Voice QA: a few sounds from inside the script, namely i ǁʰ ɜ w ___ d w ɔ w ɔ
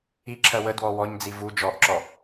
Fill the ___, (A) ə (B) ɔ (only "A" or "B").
A